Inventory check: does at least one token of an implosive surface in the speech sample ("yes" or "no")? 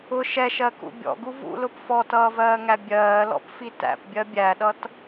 yes